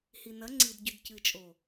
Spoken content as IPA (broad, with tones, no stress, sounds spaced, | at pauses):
h i˨ n ɐ˨˦ ŋ͡ǀ i˨ d ɟ ʉ˨ d c ɨ˨ t͡ʃʼ o˨